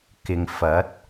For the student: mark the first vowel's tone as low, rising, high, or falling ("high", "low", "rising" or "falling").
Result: low